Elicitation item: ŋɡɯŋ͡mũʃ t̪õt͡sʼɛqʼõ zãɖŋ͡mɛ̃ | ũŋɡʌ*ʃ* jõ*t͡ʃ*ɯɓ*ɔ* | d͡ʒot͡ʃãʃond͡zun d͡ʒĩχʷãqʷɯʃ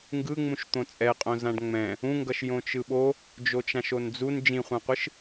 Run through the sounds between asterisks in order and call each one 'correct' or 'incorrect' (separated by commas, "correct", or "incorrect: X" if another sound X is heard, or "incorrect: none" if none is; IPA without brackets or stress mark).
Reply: correct, correct, incorrect: o